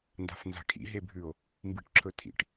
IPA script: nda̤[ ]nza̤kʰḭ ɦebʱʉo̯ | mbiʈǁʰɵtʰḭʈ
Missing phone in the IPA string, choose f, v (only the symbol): f